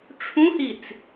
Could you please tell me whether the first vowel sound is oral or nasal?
nasal